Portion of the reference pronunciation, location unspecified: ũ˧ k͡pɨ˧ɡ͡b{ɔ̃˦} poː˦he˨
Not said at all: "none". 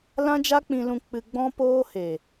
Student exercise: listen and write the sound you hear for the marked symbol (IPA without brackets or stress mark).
ɔ̃˦